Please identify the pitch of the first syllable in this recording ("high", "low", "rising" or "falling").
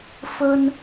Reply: high